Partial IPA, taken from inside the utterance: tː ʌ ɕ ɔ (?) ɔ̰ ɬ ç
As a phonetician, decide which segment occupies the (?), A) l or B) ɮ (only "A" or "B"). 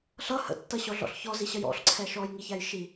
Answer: B